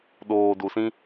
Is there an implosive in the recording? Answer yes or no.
yes